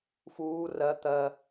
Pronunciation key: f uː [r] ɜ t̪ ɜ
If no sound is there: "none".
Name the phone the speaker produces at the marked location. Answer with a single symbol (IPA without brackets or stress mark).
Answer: r